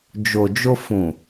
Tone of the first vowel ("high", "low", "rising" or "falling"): low